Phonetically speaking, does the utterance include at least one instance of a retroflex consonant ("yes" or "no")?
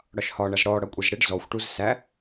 yes